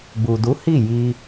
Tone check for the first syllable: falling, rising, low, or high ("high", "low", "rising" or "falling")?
low